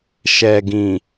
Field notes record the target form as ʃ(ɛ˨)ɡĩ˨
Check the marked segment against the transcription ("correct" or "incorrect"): correct